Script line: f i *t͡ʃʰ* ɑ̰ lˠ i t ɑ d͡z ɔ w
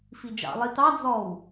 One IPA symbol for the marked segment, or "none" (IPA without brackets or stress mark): d͡ʒ